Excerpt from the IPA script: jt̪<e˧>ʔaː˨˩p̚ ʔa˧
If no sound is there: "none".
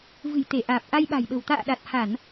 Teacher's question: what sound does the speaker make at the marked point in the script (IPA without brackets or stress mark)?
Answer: e˧˩